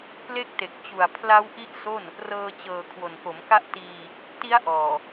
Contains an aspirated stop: yes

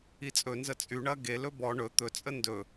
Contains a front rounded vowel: yes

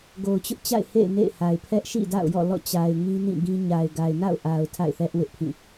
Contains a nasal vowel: yes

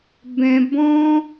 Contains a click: no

